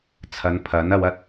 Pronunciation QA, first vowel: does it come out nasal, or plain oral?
oral